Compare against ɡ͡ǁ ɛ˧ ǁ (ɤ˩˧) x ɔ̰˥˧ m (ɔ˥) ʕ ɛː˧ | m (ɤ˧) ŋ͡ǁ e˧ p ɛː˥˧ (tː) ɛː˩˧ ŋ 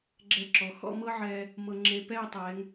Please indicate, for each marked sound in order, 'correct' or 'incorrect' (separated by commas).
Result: incorrect, incorrect, correct, incorrect